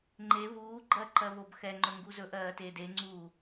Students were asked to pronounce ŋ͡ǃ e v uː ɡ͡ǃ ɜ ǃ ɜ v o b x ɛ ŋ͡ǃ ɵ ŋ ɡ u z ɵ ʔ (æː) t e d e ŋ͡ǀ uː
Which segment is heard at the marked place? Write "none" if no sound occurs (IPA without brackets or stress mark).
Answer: ɜː